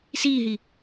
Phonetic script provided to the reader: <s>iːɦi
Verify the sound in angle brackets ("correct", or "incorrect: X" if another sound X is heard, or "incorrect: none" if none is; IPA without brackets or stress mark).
correct